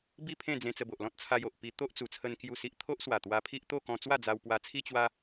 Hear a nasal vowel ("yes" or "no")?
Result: yes